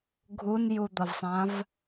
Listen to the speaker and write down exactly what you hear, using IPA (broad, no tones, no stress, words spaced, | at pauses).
ɡʱunjud̪ʌvsˤãv